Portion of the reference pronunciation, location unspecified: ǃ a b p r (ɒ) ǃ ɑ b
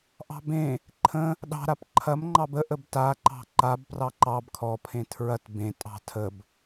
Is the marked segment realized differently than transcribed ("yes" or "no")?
yes